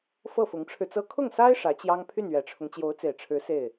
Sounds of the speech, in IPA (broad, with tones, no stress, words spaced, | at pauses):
fɤ˥˩fʊ˧˥ŋʈ͡ʂʰɻ̩˧t͡sɤ˥ kʰʊ˥˩ŋsa˥ɪ̯ ʂä˧˥t͡ɕjɑ˥ŋ pʰy˥˩nɥɛ˨˩ʈ͡ʂʰʊ˦ŋ t͡ɕjo˧˥ʊ̯t͡se˨˩ɪ̯ʈ͡ʂʰɻ̩˧˥ se˥˩ɪ̯